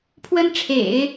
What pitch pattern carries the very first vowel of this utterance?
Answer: high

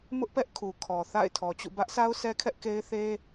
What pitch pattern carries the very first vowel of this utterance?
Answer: high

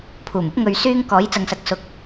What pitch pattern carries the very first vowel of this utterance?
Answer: low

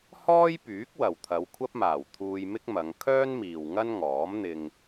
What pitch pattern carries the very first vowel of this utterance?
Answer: high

